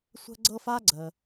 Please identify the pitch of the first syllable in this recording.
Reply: high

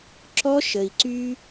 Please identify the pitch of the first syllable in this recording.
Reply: high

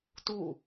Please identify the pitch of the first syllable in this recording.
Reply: falling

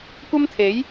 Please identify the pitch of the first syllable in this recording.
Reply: high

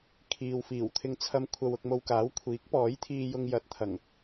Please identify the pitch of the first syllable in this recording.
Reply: low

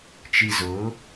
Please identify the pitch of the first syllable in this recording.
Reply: low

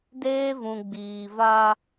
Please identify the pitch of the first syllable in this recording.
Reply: high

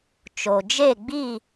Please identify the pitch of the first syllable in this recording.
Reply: low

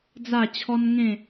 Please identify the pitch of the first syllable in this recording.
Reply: falling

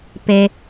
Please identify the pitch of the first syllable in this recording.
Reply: low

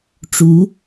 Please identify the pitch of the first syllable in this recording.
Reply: rising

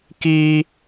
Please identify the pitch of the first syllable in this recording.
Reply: high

